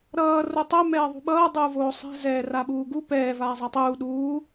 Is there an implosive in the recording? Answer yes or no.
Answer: yes